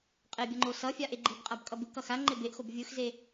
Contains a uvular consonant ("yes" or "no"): yes